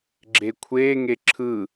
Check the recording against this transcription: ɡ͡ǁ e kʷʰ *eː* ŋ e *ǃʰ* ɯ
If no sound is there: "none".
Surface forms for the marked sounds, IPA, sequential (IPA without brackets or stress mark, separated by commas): eː, ǁʰ